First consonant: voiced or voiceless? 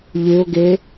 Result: voiced